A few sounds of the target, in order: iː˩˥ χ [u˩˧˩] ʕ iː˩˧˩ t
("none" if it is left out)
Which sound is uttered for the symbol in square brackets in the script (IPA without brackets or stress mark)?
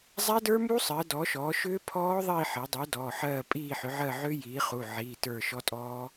u˩˧˩